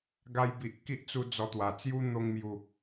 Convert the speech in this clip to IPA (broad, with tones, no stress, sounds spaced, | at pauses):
ɡ a˧ j b i˨ ʔ k i˦ ʔ t͡s u˧ d͡z ɔ˧ t̪ w a˨˩ t͡s j u˦ n̪ o˧ ŋ m j u˨˩